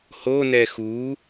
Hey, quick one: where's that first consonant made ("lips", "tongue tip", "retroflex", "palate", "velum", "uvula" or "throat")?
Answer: throat